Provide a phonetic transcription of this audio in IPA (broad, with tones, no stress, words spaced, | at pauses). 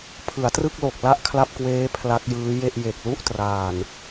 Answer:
pʰɯ˩˦a̯trɯ˥˩k̚lo˨˩k̚ la˥˩ʔkʰla˥˩p̚kweː˦˥ pʰla˦˥k̚jɯː˦˥ je˥˩ʔ je˨˩k̚lu˥˩ʔtraː˨˩n